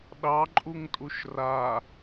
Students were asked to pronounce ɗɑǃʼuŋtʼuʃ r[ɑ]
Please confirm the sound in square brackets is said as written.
no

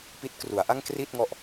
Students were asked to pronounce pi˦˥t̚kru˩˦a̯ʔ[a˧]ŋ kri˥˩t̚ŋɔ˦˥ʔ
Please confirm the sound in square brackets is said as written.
no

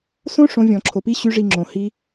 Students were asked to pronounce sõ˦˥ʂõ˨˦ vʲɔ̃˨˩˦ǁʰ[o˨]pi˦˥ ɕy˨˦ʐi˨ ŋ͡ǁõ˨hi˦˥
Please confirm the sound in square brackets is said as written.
yes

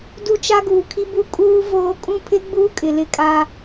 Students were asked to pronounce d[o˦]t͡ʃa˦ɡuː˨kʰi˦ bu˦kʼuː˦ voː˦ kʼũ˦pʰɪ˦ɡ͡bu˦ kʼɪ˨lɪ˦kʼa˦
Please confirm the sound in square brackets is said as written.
no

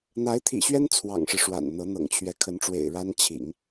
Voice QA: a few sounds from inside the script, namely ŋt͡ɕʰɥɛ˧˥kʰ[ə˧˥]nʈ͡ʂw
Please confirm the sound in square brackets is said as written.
yes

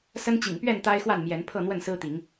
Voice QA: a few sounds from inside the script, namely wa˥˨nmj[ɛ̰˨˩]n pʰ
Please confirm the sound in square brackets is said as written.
no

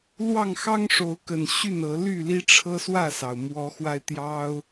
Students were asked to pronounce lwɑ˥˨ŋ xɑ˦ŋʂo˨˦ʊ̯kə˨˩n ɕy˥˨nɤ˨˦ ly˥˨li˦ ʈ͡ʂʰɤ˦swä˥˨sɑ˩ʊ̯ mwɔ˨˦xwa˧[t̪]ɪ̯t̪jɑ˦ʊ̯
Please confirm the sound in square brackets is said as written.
no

